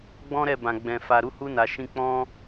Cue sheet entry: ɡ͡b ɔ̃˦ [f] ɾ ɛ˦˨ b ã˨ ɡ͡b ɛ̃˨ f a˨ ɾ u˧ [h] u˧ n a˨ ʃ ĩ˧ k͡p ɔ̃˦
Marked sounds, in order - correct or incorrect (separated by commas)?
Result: incorrect, correct